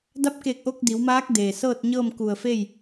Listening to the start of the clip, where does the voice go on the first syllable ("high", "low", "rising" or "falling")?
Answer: rising